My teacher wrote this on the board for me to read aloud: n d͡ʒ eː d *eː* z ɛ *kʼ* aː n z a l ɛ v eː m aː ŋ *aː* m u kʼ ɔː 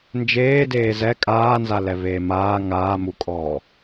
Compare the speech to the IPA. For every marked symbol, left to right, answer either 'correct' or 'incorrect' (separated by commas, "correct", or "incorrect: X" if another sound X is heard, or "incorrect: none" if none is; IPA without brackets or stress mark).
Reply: correct, correct, correct